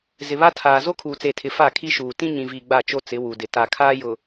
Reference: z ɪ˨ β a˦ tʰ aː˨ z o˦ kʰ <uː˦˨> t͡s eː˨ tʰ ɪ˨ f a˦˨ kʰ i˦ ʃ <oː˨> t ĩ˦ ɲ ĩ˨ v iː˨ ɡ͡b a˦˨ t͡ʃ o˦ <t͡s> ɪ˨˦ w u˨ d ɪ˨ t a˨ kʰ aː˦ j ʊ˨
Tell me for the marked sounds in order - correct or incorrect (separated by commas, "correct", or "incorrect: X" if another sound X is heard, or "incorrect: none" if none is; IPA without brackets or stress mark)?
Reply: incorrect: uː˨, incorrect: uː˨, correct